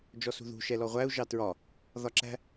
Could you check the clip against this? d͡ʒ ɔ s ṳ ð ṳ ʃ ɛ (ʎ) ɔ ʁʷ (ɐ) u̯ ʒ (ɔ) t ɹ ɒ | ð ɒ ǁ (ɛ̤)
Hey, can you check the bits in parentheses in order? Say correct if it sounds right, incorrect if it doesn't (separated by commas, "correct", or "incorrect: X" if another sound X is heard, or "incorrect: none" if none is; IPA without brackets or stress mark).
incorrect: l, incorrect: æ, incorrect: ɑ, incorrect: æ̤